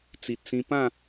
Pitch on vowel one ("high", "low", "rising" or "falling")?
low